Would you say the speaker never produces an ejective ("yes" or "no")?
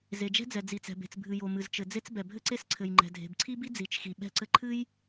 yes